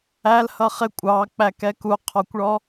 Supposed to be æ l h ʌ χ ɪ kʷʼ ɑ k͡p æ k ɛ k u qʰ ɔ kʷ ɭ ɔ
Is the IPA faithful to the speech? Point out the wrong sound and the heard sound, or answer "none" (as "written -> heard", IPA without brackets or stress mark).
none